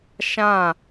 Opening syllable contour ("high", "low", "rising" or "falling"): falling